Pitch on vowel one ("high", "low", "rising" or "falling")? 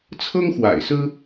high